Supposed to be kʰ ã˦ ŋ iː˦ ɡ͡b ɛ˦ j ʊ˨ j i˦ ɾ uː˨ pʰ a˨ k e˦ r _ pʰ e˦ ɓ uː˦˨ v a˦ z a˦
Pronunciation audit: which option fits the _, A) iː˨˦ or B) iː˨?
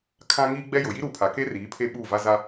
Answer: A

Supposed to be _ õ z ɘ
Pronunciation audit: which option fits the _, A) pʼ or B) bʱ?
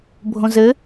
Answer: B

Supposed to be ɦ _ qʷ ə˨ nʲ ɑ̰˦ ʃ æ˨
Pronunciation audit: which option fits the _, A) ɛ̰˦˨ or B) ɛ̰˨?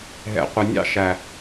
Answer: B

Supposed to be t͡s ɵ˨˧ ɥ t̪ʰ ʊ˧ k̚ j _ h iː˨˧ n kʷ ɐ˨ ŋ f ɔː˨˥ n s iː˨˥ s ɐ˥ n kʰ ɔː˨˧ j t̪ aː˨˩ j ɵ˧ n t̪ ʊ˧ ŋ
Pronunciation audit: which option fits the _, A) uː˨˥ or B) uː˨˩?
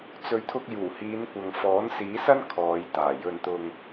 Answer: B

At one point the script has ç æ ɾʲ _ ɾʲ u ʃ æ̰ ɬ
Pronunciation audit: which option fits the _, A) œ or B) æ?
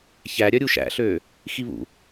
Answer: A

